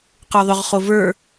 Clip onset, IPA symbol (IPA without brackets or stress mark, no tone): q